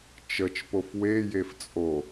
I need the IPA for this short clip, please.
t͡ʃət͡ʃpof wejef t͡sʼo

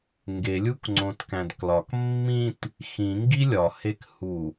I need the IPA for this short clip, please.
ŋɡelʲukŋ͡ǀõtkæ̃d klɒk mːĩt | xĩŋɡi lʲɒhekhu

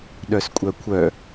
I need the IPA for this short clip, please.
ɗœskʷʼœkʷʰœ

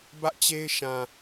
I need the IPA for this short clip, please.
bä˦ʔt͡ɕe˦ɪ̯ʃã˨

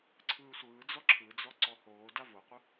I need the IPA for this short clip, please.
ǀʰɯːsʷɯːd͡zɔ ǁʰɯd͡zɔ ǀɔhoːda voqʷɯ

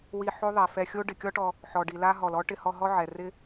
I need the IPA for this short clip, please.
wi˧ħo˦ ðˤɛ˨fɛ˧xʲo˦ ɖɪ˨kʲɔ˦ʈɔ˧ | ħɔ˨ɖi˨la˦ ɦɔ˨lɔ˦ ʈɪ˧hɔ˧ ɦɔ˦ʕɛ˨ rɪ˦

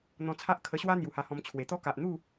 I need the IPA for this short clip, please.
n̪ɔ̃˧t͡sʰa˦ʔ kʰə˧ɕwa˦ n̪ju˨˩ha˧hɔ̃˧m t͡ɕʰwe˨˩t̪ɔ˦ ka˨ʔn̪u˥˧

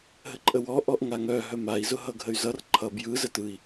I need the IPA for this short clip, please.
ɦəǃʼəwɔ ʔɔʔŋaŋœ ɦœmai̯ zʊɦʌɡʱəy̯zʌr ǃʰʌ bjɯ zətɯi̯

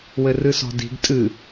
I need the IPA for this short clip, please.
wɘrɨsɔ̤di̤ɡ tʼɨ

